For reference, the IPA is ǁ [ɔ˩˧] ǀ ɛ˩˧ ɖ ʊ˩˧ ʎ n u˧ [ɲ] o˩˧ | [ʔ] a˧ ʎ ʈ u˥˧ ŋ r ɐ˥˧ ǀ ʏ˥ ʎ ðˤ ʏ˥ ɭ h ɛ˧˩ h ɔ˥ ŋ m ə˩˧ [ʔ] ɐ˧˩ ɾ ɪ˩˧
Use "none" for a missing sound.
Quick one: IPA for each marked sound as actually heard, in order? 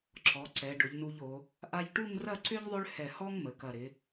ɔ˩˧, ʎ, ʔ, k

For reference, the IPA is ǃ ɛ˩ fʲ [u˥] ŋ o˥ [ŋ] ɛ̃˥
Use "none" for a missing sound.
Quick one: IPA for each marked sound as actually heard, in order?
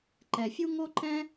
u˥, ǃ

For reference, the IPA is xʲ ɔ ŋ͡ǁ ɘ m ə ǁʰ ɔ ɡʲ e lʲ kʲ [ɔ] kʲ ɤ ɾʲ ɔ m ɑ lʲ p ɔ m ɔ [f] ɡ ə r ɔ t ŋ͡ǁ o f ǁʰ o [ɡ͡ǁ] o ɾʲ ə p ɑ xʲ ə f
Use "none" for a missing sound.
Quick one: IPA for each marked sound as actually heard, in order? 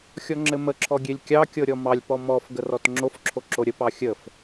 ɑ, f, ǁ

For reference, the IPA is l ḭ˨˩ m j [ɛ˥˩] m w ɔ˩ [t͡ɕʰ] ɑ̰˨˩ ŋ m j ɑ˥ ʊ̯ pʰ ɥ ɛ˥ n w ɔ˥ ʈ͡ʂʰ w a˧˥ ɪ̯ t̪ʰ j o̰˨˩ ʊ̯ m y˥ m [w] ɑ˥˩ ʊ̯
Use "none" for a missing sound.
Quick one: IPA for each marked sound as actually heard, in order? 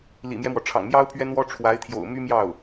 ɛ˦, ʈ͡ʂʰ, j

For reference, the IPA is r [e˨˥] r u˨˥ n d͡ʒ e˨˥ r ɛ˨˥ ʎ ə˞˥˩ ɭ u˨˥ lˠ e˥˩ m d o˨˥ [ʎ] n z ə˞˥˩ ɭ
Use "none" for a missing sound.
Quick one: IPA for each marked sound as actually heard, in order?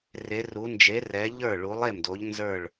e˨˥, ʎ

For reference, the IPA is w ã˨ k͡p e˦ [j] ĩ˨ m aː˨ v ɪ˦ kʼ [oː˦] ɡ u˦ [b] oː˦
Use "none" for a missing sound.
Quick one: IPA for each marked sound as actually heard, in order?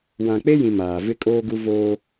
j, oː˦, v

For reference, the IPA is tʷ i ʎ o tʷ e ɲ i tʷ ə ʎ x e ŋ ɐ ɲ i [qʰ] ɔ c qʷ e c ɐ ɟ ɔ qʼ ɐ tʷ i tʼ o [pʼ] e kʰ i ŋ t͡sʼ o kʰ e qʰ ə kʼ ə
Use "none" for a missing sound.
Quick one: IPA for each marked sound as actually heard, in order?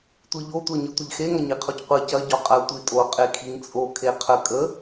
qʰ, qʼ

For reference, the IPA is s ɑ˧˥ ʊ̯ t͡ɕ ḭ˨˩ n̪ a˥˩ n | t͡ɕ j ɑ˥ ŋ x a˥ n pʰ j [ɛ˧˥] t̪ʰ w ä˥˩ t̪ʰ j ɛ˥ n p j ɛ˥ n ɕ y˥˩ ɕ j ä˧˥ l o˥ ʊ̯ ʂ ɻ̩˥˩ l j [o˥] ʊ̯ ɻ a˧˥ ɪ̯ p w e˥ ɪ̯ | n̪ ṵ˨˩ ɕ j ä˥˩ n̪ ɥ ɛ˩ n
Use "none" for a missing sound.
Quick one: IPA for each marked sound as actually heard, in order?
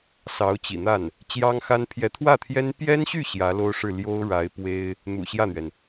ɛ˧˥, o˥

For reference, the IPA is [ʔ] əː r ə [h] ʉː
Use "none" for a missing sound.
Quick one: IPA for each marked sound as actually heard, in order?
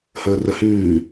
h, h

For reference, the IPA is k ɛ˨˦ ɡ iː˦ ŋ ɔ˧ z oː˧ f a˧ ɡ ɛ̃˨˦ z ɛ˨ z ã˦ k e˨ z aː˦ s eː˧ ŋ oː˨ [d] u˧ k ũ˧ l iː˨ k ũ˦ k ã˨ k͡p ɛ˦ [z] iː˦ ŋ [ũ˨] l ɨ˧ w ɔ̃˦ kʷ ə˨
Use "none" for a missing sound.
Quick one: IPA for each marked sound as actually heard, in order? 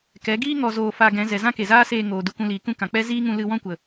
d, z, ũ˧

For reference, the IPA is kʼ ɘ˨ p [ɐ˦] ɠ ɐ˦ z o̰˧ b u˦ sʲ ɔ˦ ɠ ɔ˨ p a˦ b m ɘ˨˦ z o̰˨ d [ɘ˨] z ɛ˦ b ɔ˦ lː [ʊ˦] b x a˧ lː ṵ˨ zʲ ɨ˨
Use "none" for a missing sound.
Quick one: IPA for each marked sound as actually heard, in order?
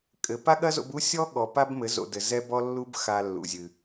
a˦, ɘ˨, u˦

